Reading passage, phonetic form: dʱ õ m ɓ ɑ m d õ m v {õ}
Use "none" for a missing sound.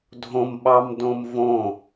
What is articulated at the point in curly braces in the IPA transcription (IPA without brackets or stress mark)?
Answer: õ